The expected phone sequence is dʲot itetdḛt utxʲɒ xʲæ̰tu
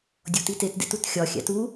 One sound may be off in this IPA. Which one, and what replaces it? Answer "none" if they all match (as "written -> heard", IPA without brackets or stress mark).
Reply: none